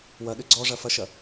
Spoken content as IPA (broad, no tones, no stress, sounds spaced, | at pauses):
w ɐ ɗ ʏ ɡ͡ǀ ɔ ʐ ɐ f ɐ ʃ ɐ